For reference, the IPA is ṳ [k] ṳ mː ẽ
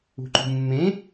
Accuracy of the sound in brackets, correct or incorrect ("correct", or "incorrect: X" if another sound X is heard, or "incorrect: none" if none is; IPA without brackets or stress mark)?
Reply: incorrect: ǃ